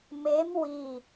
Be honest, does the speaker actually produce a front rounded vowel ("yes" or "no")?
no